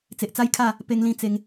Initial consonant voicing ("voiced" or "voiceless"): voiceless